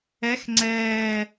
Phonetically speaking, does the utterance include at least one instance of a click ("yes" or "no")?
yes